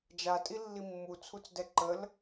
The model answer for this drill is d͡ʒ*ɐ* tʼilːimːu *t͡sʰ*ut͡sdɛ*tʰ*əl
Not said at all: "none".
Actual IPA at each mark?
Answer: a, t͡sʰ, ǃ

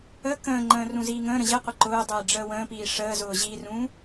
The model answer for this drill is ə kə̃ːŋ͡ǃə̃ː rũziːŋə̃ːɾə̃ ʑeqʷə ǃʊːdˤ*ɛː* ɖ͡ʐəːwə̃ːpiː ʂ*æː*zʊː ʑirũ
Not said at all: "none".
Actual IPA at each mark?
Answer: eː, əː

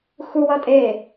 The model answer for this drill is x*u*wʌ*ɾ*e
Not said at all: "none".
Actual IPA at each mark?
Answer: u, tʼ

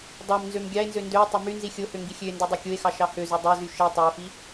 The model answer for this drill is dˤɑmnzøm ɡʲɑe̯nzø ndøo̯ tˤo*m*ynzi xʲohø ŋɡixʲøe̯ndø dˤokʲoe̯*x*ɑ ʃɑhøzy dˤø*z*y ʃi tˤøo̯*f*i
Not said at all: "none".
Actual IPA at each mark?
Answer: m, x, z, f

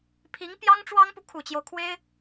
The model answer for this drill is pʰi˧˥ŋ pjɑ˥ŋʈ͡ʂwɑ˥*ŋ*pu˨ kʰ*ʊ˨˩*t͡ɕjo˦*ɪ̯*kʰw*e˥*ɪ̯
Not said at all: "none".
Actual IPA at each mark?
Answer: ŋ, u˨˩, ʊ̯, e˥

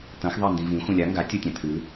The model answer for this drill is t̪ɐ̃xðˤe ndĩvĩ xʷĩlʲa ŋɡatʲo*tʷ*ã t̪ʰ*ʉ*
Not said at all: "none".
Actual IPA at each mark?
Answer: tʲ, ʉ

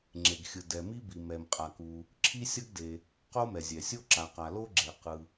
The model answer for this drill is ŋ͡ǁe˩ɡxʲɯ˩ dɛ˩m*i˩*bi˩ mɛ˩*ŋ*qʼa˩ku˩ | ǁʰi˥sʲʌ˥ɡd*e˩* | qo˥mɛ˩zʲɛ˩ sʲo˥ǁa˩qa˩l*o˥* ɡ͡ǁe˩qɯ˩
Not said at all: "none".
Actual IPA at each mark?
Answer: i˥, m, e˩, o˥

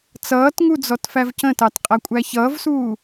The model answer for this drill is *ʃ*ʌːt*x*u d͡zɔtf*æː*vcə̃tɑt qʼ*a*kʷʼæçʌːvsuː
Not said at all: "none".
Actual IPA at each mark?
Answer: t͡s, ŋ, æ, æ

